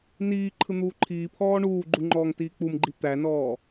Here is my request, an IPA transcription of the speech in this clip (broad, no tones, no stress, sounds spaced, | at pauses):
n iː ǃʰ ɯ n̪ uː ǃʰ iː pʰ ɔː ɳ uː ɡ͡ǃ u ŋ͡ǃ ɔː ŋ t iː k͡p u m ɡ͡ǃ i t̪ æ n ɔː